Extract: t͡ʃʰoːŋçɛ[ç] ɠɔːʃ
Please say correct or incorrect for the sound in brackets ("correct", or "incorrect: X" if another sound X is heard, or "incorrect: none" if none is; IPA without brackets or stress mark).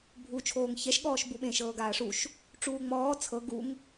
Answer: incorrect: ʃ